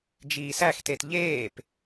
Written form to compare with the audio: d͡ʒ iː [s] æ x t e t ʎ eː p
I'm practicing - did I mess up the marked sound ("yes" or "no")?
no